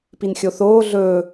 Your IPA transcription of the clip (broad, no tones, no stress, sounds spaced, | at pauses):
p i n xʲ o θ oː ɮ ɵː